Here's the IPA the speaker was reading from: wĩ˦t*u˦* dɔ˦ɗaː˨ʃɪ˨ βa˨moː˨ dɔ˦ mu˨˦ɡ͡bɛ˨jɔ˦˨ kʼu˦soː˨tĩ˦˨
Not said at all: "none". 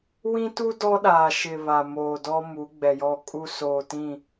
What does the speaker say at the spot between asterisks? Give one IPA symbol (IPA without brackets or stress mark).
u˦